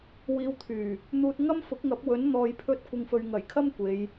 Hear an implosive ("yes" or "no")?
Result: no